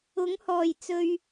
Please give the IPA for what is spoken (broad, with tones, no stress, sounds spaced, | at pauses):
ʊ˨˥ ŋ h ɔː˨˩ j t͡s ɵ˨ ɥ